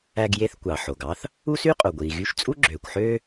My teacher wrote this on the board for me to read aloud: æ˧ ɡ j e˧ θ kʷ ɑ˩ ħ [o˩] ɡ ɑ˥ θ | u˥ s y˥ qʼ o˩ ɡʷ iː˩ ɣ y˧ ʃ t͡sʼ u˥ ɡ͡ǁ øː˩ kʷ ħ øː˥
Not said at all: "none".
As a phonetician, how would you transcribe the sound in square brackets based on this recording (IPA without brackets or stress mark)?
o˩